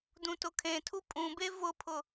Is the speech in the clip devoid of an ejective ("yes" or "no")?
no